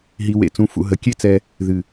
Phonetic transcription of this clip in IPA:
ɦi˧ wḛ˨t͡sũ˨fṵ˨ ɦə˨˦ kʲe˦t͡sɛ˧ | ðɨ˨

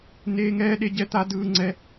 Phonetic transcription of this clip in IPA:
neː˥ŋɛː˥ ɗe˥ɟɛ˥t̪a˥ dɯː˥ŋ͡ǀɛ˥

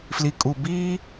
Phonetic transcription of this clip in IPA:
fli˨kʼu˨ biː˦

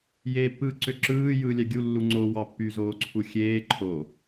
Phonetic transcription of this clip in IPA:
jeːpːɯːǀøǁɯː jɯːlʲæɡʲu lːuŋ͡ǀo wɑpːy zoːǀʰuxʲeː ǃʰo

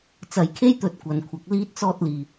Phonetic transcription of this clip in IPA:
t͡sɐ˧jkʰe˥jt̪ɵ˧t̚ kʷɐ˧nkʷʰɐ˧k̚ liː˥t̚t͡sɔː˥t̚liː˧

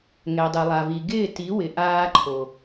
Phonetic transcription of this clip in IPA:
ŋɛ˨dˤe˨lˠa˨vi˨ ɡɪː˦˨ti˨˦ wɪ˨ʔaː˦ǃʰo˨

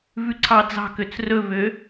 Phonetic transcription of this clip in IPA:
vʉǀʰɑd͡zɑ̤køt͡s rɵvø

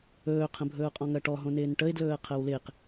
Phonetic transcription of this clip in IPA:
ɵːqʰə̃ bʱɵːʊ̯qʼɔ̃ŋɜʈɔ ɦõnɪːnʈəɪ̯dlɵːə̯ qʰɜwlɪːq

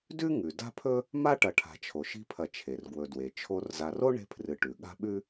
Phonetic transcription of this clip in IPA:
dʉ˥ŋʉ˩ da̤˥pʰɵ˥ | ma˥ʈɐ˨ ʈʰa̤˨t͡ʃʰo˩ʃi̤˦pʰɐ˨ t͡ʃʰe˩rɡwɵ˨dwe˩t͡ʃʰo˦r za˨ro˥ ɳe̤˦pʰrɨ˨ ʈʉ˩ɠa̤˥ɓʉ˥

